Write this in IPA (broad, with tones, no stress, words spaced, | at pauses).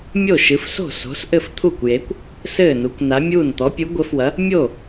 mʲo˥˩ʃɨ˨˥fso̤˥˩ so̤˨˥sʔɘ˥˩ft̪ʰu˥˩kʷje˨˥kʷ | sɘː˥˩nu˨˥kʷna˨˥mʲuː˥˩n t̪ɔ˨˥pʲu˨˥ɡʷɘ˨˥fwɐ˨˥ | mʲo˥˩